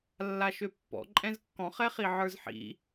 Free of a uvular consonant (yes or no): no